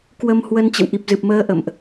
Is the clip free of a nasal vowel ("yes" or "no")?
yes